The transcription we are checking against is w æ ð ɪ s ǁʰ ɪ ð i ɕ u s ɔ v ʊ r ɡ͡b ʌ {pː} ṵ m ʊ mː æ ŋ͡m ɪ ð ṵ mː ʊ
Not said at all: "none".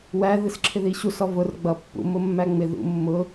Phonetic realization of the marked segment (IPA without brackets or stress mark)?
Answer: pː